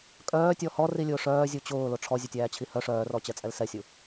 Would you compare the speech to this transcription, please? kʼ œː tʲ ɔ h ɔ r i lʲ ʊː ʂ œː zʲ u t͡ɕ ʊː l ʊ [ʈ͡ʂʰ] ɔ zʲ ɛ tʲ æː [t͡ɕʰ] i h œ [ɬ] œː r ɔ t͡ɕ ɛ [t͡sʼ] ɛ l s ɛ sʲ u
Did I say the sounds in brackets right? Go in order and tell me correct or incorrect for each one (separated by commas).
correct, correct, incorrect, correct